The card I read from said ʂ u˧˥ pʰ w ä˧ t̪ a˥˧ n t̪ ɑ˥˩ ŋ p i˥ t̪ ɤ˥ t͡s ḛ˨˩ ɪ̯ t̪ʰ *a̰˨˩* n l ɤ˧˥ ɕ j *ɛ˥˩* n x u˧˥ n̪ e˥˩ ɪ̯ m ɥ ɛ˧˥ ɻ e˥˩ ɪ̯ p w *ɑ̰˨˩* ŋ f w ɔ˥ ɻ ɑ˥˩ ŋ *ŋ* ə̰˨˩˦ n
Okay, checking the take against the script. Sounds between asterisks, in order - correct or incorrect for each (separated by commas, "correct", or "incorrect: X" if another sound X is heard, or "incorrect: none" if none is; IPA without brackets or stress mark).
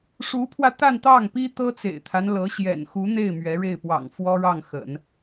incorrect: a˦, incorrect: ɛ̰˨˩, correct, incorrect: x